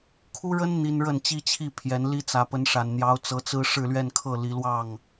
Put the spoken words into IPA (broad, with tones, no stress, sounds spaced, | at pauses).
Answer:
kʰ u˥ ɻ ə˥ n n̪ i˥ n ɻ ə˥˩ n t͡ɕ i˥ t͡ɕʰ i˥˩ pʰ j ɛ˧˥ n l i˥ t͡s ä˧˥ p ə˧˥ n ʂ a˨˩ n n̪ j ɑ˧˥ ʊ̯ t͡s ɤ˧˥ t͡s ɹ̩˥ ʂ ɻ̩˥˧ l ɥ ɛ˥˧ n kʰ ɤ˥˩ l i˧˥ l w ɑ˥˩ ŋ